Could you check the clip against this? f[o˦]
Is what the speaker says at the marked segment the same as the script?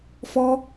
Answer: no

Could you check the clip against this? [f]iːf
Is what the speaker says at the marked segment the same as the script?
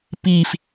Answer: no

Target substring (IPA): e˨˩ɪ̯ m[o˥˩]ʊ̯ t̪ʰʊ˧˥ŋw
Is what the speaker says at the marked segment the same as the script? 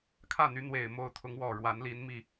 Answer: yes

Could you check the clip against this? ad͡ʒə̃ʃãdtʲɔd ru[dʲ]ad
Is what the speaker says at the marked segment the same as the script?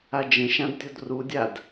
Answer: yes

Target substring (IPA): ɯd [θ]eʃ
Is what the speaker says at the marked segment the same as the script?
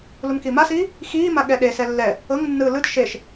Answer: no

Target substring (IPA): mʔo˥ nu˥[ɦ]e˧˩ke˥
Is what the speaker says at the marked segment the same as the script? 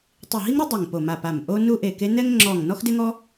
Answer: no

